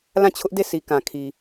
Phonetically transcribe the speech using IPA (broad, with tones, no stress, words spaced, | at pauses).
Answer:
lã˦˨t͡ɕʰʊ˦ʔde˦˨ sʰi˨kã˨kʰi˨